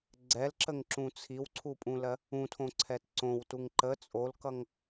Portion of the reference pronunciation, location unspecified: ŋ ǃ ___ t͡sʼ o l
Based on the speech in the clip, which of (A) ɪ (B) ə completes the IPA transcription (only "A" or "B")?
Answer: B